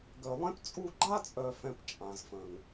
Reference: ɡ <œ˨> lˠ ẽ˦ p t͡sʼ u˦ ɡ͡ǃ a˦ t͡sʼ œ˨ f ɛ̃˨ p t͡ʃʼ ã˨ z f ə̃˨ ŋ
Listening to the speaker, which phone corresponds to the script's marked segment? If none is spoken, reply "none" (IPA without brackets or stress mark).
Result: œ˨